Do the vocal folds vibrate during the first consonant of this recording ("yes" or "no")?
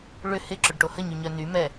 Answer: yes